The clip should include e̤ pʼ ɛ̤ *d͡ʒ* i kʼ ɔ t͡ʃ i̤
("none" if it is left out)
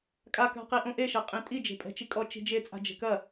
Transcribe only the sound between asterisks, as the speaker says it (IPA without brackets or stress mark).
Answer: t͡ʃ